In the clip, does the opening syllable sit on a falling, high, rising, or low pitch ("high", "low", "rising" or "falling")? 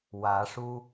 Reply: rising